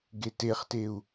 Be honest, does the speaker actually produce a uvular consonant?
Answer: yes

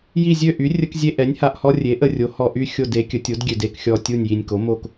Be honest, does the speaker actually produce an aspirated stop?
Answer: no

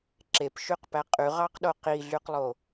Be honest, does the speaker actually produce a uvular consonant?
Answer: yes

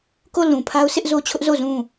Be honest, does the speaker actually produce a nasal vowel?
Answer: yes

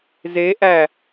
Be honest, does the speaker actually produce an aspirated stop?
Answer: no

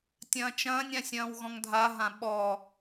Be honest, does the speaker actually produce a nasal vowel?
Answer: yes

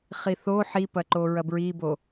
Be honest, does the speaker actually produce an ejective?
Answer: no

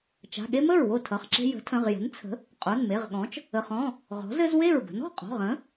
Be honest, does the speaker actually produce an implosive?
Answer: yes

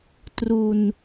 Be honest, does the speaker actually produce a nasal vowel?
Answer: no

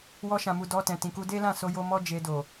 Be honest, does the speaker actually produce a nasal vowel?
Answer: yes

